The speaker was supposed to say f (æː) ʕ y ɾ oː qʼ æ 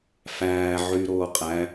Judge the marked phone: correct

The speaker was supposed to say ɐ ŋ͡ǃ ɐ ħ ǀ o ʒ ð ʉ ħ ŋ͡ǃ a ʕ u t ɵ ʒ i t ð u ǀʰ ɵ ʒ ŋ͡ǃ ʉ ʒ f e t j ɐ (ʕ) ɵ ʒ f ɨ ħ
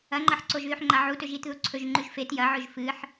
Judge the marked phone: correct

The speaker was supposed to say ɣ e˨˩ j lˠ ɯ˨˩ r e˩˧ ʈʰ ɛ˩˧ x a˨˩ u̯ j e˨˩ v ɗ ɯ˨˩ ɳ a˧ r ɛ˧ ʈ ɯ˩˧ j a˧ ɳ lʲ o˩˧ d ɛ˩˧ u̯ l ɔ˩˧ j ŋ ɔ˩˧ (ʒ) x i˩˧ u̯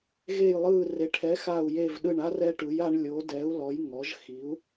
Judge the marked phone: correct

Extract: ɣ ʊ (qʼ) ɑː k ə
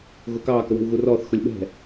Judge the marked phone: incorrect: k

